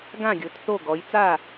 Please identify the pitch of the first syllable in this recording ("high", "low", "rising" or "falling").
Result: falling